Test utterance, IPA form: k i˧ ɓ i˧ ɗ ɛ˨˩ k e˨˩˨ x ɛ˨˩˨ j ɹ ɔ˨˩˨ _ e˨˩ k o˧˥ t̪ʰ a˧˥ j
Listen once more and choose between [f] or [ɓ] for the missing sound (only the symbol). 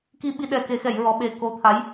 ɓ